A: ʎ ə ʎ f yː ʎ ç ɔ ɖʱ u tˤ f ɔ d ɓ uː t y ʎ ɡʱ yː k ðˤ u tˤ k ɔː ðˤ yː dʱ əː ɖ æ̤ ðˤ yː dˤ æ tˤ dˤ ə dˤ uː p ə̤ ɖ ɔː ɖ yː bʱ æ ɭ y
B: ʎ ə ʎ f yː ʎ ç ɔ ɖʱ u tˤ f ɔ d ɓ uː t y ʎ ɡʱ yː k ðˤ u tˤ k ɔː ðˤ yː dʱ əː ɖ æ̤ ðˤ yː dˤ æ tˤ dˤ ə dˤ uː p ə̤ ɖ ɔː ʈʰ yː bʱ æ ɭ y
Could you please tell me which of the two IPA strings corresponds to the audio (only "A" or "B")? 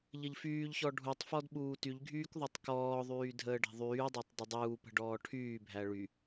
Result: B